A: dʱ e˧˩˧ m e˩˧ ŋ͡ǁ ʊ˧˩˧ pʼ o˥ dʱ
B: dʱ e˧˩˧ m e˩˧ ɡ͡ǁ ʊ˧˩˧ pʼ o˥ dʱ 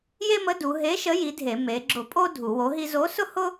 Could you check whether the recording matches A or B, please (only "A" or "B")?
B